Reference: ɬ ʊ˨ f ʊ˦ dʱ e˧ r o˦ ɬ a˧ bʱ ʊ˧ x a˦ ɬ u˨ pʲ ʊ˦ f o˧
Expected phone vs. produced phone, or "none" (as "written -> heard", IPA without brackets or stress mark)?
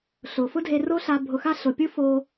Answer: u˨ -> ʊ˨